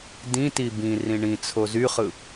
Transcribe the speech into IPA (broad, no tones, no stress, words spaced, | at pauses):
dĩti bĩ rĩɳĩt͡sʰo zyχɯ